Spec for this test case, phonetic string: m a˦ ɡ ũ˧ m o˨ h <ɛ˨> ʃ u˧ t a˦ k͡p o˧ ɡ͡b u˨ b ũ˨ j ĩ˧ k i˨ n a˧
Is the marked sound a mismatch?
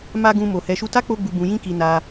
no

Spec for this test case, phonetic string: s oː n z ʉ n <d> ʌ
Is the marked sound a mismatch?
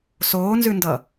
no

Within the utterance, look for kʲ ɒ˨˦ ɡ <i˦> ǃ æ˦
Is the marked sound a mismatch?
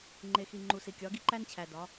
no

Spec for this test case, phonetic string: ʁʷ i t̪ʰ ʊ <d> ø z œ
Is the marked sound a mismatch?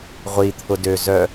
no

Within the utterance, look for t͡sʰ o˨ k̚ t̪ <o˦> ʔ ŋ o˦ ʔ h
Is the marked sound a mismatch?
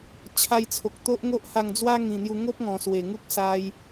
no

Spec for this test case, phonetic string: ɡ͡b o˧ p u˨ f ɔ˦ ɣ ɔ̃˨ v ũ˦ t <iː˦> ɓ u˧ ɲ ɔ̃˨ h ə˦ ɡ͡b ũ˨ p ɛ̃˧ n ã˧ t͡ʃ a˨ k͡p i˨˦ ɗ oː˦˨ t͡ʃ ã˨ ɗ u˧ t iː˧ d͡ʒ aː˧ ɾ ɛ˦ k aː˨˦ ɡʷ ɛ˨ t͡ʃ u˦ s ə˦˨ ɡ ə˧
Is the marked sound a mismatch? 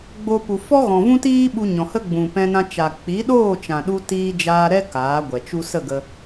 no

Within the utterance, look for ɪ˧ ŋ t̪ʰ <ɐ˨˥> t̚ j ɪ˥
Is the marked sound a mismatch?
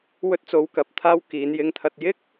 yes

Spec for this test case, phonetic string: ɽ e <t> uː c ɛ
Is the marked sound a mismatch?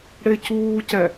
yes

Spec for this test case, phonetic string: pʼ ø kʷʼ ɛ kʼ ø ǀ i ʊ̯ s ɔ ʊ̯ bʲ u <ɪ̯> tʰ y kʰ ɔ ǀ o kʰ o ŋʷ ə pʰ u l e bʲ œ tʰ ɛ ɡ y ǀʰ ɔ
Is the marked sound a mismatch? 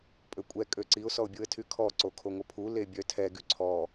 yes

